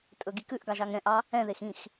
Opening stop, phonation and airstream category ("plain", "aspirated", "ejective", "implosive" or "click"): ejective